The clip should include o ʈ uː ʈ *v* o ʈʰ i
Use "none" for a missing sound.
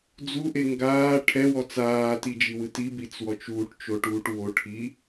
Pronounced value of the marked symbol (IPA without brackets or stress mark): w